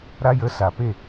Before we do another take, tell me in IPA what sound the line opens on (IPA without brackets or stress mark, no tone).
ɾ